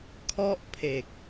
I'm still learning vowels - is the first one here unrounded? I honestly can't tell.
no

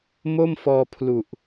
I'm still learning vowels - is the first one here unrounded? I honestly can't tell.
no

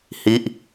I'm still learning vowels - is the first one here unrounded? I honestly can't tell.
yes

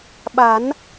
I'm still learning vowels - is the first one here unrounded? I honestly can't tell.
yes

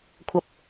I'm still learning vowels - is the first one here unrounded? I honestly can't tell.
yes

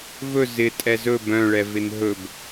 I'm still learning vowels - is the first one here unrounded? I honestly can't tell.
no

